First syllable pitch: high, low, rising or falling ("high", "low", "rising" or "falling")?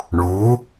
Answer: rising